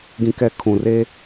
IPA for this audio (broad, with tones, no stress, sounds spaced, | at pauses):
ɡ ĩ˦ k ɛ˦ kʰ ũ˨ r e˦